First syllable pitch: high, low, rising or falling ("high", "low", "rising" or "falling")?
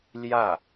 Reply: falling